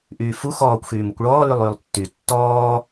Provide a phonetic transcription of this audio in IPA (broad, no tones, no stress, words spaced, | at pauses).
ʔyːfu xɔːkʷ xyːmukʷɭɔː lylˠyːlˠtːy tːɔː